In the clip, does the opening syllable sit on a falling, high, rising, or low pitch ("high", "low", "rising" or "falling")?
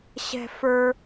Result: high